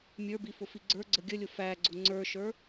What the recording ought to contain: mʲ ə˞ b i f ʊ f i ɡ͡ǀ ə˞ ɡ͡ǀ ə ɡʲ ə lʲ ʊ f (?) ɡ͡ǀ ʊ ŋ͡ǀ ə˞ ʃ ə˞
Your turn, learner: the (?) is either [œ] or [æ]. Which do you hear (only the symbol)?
æ